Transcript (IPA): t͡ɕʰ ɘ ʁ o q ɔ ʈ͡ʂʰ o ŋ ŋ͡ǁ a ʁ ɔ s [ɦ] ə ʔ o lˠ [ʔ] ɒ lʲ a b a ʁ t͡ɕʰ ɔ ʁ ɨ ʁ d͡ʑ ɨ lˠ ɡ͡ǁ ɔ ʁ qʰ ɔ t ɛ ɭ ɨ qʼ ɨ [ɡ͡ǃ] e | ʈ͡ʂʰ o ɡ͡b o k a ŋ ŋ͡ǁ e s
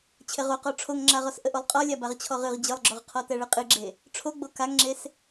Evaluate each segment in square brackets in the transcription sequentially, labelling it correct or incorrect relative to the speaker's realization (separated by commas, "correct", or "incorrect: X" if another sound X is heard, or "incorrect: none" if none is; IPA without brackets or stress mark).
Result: incorrect: ʔ, incorrect: qʼ, incorrect: ɡ͡ǁ